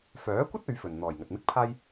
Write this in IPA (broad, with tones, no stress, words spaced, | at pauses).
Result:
fœː˨˥kʷɐ˥t̚ ɵ˨˥ɥfɵ˨n n̪ɔː˨˩jŋɐ˨t̚mɪ˥k̚pʰaː˥j